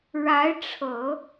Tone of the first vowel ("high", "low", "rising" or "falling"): rising